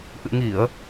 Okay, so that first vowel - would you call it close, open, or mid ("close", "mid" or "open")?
close